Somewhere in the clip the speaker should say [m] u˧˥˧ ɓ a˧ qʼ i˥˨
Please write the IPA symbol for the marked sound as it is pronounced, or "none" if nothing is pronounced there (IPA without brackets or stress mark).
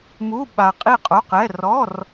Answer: m